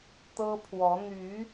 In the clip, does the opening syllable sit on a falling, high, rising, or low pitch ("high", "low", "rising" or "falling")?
high